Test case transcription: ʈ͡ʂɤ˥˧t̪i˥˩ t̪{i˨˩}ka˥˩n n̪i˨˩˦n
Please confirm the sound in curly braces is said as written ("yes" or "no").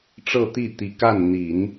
yes